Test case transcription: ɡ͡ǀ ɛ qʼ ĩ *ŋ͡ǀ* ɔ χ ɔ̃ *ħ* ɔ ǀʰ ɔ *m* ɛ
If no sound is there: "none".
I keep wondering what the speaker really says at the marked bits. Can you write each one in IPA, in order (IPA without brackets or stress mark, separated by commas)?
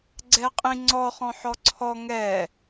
ŋ͡ǀ, ħ, ŋ